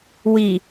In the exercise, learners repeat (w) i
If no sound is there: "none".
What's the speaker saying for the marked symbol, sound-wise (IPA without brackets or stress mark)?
w